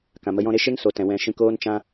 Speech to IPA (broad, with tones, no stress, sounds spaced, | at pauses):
k ã˨ m ə˧ j ɔ̃˦ ɾ e˦ ʃ e˦ ŋ s o˨ t ɛ̃˨ w ɛ̃˧ ʃ ĩ˧ k oː˦ n t͡ʃ ã˦